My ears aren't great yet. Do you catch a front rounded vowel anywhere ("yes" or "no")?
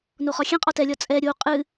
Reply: no